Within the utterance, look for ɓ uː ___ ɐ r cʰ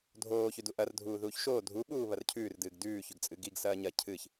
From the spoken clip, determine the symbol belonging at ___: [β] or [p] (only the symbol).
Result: β